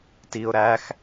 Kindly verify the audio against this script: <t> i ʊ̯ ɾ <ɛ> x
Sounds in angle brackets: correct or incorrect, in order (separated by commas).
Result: correct, incorrect